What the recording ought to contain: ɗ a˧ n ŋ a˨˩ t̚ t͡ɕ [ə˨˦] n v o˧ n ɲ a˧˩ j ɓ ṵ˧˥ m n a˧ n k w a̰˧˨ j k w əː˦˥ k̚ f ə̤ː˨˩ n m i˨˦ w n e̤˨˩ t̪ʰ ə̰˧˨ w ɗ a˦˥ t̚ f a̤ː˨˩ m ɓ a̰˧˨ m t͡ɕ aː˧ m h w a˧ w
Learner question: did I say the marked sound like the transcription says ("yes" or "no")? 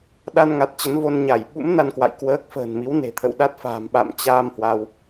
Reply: yes